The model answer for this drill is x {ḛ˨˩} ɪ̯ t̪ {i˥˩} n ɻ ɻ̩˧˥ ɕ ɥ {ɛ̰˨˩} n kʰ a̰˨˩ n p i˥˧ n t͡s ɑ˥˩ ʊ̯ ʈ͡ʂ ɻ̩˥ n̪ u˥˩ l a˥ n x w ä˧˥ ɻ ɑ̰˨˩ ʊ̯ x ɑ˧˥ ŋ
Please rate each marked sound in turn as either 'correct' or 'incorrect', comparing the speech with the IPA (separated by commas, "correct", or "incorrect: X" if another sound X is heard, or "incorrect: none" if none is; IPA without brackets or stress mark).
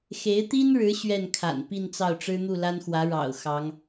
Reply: incorrect: e˧˥, incorrect: i˥, incorrect: ɛ˥˩